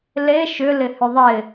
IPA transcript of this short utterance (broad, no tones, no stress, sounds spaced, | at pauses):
l e ʃ ʏ l ɪ h ʏ ðˤ ɪ